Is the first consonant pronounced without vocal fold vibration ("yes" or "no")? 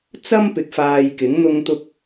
yes